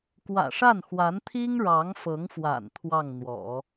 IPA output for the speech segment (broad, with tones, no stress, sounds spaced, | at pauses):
k w ä̰˨˩ ʂ a˥˩ n x w a˧˥ n t̪ʰ i˥ ŋ ɻ ɑ˧˥ ŋ f ɤ˧˥ ŋ f w a̰˨˩ n t̪ʰ w ɑ˥˩ ŋ n̪ w ɔ̰˨˩˦